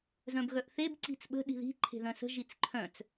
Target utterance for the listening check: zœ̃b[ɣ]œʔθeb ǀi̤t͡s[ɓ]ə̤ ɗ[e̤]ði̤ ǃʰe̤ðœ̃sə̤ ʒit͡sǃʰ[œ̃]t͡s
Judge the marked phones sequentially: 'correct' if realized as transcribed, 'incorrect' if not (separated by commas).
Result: correct, correct, incorrect, correct